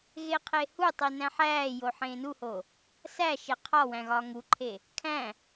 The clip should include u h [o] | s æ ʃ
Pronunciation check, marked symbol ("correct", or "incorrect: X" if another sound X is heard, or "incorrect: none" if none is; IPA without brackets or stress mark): correct